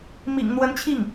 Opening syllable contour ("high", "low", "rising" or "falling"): low